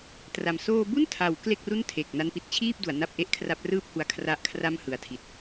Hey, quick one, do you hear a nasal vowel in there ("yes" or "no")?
no